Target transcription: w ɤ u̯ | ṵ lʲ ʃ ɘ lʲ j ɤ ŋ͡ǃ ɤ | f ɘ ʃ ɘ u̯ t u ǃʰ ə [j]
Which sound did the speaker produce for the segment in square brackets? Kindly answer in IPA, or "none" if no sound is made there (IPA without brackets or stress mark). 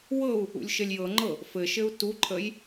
j